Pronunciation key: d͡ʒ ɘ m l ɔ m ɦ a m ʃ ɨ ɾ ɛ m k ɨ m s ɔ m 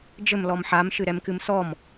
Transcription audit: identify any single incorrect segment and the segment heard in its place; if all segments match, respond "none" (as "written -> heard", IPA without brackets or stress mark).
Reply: ɦ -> ħ